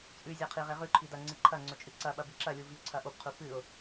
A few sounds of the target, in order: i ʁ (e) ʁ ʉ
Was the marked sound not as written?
no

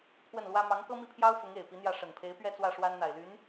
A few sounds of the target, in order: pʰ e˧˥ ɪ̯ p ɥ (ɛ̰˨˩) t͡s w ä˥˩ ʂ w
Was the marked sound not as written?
yes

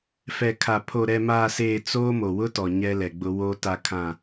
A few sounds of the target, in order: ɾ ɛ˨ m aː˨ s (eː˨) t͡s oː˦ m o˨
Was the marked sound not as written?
no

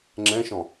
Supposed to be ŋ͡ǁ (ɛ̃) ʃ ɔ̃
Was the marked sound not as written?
no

